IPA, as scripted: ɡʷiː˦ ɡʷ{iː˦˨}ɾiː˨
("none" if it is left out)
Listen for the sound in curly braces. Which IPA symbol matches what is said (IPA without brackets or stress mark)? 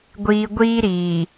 iː˦